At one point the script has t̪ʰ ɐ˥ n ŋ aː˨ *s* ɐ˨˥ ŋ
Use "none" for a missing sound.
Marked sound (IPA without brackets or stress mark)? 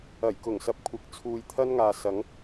s